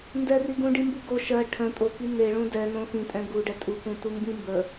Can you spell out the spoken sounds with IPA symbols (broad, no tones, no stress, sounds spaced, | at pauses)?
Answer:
n d ɛ r i ɡ ũ ɖ i m b u ɡ o ʃ ɜ ʈʰ ə̃ tʼ o k i n e ɭ ũ d ɛ n õ x ĩ tʼ ɛ̃ ɡ u ɖ ɛ tʼ u k ũ t u m b ĩ m b ə